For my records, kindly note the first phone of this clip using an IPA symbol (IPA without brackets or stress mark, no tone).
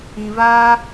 ĩ